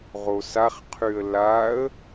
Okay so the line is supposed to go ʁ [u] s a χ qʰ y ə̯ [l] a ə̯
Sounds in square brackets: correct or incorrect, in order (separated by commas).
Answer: incorrect, correct